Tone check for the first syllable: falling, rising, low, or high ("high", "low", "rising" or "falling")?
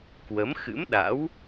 rising